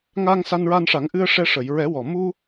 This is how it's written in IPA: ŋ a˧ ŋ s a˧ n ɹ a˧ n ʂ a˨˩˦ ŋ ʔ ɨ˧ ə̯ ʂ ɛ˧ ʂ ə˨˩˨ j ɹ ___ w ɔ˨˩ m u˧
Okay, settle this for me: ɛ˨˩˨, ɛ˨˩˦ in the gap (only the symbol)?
ɛ˨˩˦